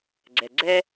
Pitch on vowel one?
low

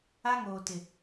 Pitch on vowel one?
high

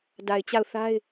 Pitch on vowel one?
low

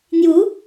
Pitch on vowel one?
rising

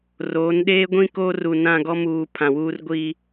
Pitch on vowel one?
rising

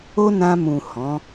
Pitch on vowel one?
high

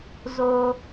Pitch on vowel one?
high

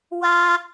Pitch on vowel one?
high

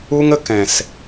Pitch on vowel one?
high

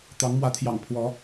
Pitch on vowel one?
rising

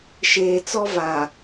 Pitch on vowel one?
low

